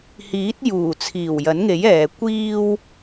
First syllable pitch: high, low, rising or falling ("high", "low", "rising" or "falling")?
rising